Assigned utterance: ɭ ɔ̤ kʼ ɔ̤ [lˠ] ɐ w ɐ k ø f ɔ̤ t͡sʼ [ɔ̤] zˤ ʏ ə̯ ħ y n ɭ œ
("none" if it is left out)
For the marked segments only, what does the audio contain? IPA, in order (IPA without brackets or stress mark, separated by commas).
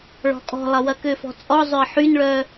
lˠ, ɔ